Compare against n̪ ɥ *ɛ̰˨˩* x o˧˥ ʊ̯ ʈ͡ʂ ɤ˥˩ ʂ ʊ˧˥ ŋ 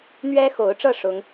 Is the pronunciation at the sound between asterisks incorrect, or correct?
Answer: incorrect